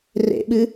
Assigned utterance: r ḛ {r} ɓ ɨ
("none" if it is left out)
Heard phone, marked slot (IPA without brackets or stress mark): none